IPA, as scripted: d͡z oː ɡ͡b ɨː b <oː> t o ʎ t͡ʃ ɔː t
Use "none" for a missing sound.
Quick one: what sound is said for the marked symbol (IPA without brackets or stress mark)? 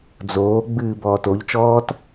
ɔː